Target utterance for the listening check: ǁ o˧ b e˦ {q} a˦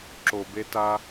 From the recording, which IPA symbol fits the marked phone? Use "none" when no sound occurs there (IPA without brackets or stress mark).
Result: t